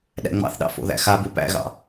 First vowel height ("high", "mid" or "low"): low